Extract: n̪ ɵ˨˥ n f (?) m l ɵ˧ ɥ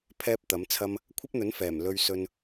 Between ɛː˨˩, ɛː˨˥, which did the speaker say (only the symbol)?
ɛː˨˩